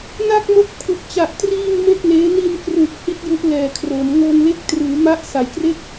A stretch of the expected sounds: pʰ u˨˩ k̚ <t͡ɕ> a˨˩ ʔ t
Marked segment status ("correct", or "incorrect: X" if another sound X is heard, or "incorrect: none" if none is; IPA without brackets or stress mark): correct